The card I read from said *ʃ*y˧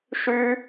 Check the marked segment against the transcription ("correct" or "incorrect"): correct